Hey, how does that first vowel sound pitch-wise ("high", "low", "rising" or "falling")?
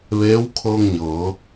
rising